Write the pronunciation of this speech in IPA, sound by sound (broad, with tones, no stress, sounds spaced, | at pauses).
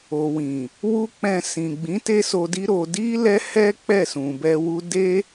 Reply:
o˨ w ĩ˨ | w u˦ k͡p ɛ̃˧ s ĩ˨ ɡ͡b ĩ˨˦ t e˦ s o˧ d i˦ ɾ o˧ d i˦ l ɛ˦ h ɛ˦ k͡p ɛ˦˨ s ũ˨ b ɛ˧ w u˦ d e˦